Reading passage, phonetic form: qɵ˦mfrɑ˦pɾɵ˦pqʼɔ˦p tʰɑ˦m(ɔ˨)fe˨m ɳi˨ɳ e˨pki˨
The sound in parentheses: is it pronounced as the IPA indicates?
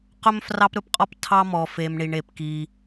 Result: yes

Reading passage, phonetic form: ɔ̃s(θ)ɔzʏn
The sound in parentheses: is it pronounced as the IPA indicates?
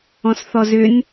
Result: yes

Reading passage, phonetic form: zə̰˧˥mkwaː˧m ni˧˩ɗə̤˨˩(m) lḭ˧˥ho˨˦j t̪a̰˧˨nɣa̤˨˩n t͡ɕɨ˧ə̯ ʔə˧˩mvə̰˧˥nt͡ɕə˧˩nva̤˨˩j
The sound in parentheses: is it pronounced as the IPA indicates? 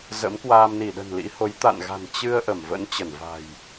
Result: no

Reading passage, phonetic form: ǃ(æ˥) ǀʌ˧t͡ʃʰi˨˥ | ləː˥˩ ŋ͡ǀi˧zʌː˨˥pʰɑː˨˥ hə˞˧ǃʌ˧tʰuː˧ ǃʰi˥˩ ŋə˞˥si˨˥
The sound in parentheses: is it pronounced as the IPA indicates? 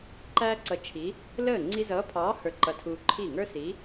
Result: yes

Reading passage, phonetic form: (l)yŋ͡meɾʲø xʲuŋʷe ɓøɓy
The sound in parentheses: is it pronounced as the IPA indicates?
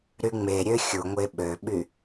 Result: no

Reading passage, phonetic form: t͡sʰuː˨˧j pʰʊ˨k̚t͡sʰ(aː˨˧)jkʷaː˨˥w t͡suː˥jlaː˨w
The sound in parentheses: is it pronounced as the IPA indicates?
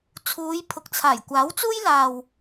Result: no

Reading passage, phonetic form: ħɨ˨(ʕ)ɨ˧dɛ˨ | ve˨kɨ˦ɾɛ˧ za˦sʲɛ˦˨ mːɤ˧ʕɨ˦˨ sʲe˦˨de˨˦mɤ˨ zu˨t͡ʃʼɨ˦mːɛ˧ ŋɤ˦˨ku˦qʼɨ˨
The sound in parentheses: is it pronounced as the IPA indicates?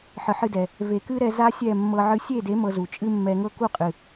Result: no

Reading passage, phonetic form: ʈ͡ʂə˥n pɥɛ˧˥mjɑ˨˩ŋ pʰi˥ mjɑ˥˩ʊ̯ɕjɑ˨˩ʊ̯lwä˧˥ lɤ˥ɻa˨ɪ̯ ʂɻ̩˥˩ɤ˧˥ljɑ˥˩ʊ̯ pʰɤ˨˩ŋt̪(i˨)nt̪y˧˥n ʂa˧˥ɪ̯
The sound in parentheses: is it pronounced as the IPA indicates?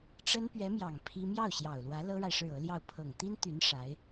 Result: no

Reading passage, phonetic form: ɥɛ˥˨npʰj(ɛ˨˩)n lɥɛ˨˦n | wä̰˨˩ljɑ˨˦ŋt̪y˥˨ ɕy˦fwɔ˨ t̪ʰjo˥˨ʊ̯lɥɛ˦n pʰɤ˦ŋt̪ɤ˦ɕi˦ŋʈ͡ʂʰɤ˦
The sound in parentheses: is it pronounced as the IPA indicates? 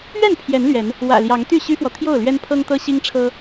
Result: no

